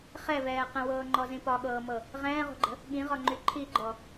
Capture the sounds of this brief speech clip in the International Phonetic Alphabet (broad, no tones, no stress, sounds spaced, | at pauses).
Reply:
χ ɛ v ɛː q ə̃ w ɤː ŋ͡ǃ ɔ z ĩ p ɒ ɠ ɤː m ɤ | ʁ ɛ̃ː ʁ o̤ ɡ͡ǃ ə̤ | ɠ ĩ ʁ ɒ ŋ͡ǃ y ǃʰ i ɡ͡ǃ ɔ